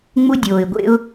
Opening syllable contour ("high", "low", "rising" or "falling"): high